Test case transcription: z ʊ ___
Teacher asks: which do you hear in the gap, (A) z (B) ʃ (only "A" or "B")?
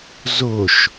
B